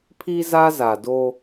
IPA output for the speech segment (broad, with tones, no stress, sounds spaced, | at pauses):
pʰ i˦ z a˦ z a˨ d o˦